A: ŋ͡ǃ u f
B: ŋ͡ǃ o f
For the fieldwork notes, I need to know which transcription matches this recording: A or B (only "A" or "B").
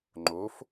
B